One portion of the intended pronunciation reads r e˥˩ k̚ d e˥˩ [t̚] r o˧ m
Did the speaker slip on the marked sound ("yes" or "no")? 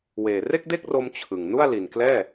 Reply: yes